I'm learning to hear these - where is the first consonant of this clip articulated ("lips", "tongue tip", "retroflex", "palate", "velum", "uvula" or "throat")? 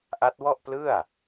throat